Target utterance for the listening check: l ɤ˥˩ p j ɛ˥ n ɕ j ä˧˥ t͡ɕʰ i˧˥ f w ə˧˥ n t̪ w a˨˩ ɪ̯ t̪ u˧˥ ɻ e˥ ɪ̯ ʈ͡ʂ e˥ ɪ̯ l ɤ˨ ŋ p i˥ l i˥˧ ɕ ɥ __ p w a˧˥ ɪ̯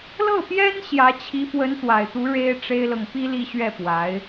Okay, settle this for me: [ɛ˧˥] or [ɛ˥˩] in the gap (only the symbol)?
ɛ˥˩